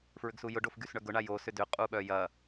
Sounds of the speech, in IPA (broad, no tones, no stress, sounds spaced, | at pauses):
f ɹ ʏ ɡ s u j ʊ ɖ o f ɡ y s ɳ œ ɡ ʊ ɳ a j o s ʏ d ʏ qʼ u ɓ œ j ɐ